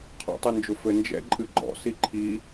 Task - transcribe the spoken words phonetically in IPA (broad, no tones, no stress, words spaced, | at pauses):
qʰɔ̰tˤɨnd͡ʒʊfɘ nd͡ʒɛ̰ ǃʼɨɡ͡ǃɔ̰ siǃʰi